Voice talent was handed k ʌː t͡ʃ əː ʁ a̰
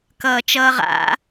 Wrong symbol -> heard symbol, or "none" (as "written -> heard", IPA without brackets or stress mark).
əː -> ʌː